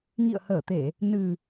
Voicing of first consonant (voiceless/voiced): voiced